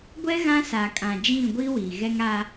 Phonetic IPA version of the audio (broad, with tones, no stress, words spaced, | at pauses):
ɡʷɛ˦ ɣã˦sa˨kʼã˨d͡ʒĩ˦˨ ɡʷi˦wi˨ ɣɛ˦ŋa˦